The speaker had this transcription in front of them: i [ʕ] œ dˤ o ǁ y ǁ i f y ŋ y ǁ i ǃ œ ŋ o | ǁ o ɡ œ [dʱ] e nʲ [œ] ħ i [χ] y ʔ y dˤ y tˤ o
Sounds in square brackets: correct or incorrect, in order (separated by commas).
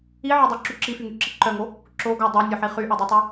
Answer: correct, incorrect, correct, correct